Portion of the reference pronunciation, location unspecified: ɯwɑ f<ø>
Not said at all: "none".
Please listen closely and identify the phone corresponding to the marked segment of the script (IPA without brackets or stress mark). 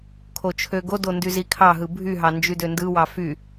y